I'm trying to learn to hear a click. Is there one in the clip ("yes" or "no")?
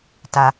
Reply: no